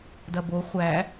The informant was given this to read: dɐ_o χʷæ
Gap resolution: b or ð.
b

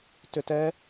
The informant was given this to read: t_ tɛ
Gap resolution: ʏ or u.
ʏ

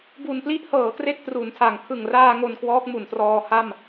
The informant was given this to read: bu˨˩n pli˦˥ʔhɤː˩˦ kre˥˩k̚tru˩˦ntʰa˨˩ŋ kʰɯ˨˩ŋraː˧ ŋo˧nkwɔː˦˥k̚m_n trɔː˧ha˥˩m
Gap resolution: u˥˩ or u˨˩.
u˨˩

